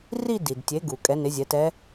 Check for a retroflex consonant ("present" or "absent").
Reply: absent